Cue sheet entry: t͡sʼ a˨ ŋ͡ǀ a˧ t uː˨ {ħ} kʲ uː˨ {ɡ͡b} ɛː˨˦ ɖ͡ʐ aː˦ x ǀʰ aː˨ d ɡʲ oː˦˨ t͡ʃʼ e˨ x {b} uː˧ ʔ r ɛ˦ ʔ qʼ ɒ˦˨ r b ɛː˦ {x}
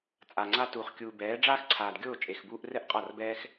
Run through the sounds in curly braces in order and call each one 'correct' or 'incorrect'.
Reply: incorrect, incorrect, correct, correct

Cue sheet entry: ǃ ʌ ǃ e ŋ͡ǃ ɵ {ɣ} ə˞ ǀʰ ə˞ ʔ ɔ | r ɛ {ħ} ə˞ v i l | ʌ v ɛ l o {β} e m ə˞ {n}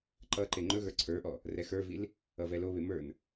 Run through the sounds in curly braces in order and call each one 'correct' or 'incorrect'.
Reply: correct, incorrect, correct, correct

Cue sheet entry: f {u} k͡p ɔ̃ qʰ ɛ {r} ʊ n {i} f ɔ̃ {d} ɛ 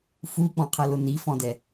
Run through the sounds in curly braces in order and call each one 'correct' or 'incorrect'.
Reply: correct, incorrect, correct, correct

